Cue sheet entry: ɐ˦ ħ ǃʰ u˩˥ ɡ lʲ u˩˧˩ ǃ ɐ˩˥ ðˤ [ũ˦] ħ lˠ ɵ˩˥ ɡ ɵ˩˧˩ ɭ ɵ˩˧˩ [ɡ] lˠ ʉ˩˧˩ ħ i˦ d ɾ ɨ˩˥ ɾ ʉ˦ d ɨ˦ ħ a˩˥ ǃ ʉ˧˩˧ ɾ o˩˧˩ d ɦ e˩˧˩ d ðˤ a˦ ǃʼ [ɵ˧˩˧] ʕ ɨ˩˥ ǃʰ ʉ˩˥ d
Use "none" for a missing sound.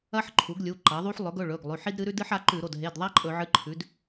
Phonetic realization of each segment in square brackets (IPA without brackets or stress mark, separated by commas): u˦, ɡ, ɵ˧˩˧